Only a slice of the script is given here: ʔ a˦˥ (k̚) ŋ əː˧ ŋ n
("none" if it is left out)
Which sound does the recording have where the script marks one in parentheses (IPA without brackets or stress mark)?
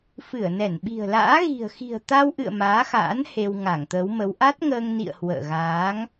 t̚